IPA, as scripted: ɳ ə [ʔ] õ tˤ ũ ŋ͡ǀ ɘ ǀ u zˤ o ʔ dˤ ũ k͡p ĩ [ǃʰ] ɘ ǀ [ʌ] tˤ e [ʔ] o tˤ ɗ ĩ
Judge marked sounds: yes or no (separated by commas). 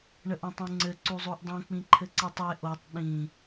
yes, yes, yes, yes